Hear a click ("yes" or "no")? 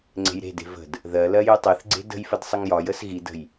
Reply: yes